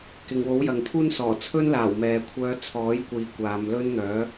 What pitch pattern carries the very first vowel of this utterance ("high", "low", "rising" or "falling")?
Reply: low